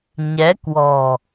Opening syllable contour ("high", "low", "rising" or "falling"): rising